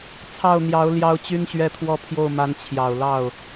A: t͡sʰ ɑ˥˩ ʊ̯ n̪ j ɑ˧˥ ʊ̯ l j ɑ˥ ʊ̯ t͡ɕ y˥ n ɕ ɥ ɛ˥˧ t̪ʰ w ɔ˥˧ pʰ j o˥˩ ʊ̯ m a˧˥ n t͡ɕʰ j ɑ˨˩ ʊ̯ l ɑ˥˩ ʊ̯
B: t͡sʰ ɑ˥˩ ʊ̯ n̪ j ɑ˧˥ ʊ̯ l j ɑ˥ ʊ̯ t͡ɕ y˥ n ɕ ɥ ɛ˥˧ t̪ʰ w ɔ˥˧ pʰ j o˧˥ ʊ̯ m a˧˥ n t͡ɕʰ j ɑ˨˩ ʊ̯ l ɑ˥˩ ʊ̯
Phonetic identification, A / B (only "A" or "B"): A